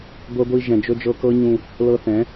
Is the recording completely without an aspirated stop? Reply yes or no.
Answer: yes